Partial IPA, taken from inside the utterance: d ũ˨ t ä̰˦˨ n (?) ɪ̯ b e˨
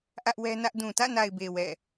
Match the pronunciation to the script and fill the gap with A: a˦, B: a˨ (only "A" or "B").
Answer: B